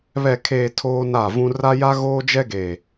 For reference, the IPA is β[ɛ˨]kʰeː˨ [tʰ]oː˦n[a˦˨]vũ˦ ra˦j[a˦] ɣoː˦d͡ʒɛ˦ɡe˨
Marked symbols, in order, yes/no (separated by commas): yes, yes, yes, yes